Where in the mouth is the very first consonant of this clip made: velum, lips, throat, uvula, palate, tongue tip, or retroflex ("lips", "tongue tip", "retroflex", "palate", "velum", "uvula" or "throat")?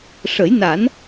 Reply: retroflex